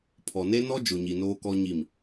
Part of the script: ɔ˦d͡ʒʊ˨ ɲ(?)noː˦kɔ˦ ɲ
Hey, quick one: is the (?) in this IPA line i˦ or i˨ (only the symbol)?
i˨